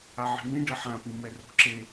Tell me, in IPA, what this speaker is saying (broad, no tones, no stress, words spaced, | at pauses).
aʕi̤mĩ ɖɘħãpĩ mɛro̤ǁe